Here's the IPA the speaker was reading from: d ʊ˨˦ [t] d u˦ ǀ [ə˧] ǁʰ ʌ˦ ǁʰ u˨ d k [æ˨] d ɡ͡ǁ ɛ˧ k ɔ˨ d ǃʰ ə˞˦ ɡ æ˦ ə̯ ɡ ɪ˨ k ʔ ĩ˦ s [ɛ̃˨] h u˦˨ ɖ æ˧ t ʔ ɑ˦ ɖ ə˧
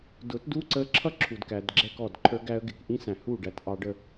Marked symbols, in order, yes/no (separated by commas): yes, yes, yes, no